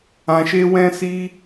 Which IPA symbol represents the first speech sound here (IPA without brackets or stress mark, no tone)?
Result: ã